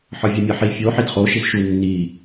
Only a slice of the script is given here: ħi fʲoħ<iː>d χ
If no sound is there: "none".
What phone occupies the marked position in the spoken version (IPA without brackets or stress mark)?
i